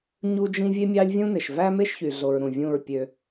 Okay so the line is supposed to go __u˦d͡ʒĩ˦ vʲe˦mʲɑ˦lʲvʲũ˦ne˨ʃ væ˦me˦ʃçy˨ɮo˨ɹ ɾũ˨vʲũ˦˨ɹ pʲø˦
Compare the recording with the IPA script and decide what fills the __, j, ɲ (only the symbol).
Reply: ɲ